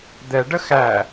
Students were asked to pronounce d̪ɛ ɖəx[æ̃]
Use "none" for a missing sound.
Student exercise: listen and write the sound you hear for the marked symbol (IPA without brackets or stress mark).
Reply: æ